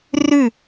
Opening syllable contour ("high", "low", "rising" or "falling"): falling